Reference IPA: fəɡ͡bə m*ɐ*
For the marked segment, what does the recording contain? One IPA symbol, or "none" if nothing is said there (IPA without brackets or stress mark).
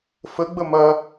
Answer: ɐ